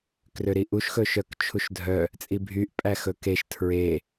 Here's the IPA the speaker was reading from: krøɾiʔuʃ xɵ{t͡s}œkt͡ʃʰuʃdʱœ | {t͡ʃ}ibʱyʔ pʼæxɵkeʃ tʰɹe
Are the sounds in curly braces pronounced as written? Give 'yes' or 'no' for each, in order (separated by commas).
no, no